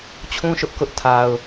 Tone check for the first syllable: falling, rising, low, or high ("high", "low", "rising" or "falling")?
high